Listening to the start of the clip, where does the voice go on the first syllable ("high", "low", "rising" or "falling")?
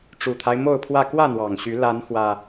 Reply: low